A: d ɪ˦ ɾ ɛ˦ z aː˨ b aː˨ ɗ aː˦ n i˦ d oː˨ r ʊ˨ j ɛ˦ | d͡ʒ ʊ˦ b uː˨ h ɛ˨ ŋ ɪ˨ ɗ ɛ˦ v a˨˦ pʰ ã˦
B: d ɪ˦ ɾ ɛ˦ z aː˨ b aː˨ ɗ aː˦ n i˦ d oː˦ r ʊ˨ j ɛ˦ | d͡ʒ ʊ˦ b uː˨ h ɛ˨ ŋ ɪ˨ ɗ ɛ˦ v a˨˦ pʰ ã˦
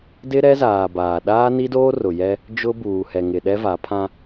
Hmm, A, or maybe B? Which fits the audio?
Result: B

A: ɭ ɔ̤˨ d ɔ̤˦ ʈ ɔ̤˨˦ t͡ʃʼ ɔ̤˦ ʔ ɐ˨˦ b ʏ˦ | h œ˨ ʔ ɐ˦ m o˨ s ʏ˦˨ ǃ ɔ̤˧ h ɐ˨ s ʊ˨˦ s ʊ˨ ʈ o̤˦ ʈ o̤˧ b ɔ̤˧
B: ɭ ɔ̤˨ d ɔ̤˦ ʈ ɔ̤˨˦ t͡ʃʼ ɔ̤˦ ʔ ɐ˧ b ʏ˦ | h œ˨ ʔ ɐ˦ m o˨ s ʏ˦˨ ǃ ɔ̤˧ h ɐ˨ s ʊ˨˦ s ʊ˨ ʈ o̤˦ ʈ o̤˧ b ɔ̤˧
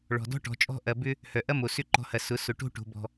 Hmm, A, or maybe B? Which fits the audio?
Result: B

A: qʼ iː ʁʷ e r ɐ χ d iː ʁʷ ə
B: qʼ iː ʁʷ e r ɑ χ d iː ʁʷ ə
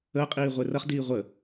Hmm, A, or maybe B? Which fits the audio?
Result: A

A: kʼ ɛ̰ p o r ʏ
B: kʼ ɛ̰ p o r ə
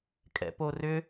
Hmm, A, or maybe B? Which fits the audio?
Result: A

